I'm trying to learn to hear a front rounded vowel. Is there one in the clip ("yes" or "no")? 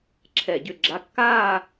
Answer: yes